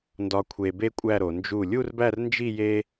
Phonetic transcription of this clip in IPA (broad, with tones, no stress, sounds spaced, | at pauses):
n d ɒ˧ kʷʰ e˧ b e˥ kʷʼ æ˥˧ ɾ o˩˧ n d͡ʒ u˧˩ lʲ u˥˧ r b æ˥˧ r n d͡ʒ i˥˧ j e˥